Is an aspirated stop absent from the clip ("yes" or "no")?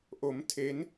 no